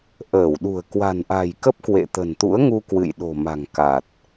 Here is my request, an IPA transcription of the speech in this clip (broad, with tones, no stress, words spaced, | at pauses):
ʔəː˧˩wɗṳ˨˩ə̯ kwa̤˨˩nʔa̤˨˩jkə˦˥p̚ kwḛ˧˨t̪ə̤˨˩nt̪ṵ˧˥ə̯ŋu˧ kwɨ̰˧˨jɗo̤˨˩ ma̤˨˩ŋka˨˩t̚